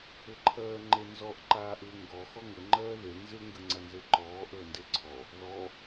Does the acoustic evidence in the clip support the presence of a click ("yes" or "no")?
yes